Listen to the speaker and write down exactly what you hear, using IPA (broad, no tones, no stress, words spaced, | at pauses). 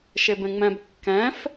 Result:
ʃebẽŋ͡mɛ̃b kːɛ̃f